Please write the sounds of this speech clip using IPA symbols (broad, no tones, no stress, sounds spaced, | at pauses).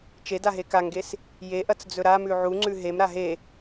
t͡ʃ e d a ɦ e k a ŋ ɡ e s | j e ʔ ɐ t͡s d͡z ɵ ɾ a m ʉ ʕ u ŋ͡ǀ ʉ ɦ e m ɾ a ɦ e